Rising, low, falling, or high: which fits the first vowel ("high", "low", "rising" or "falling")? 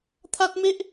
high